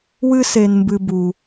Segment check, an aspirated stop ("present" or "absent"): absent